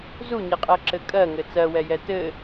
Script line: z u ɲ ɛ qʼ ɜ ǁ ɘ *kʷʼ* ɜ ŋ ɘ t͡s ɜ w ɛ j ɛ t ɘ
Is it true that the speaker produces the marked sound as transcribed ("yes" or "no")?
no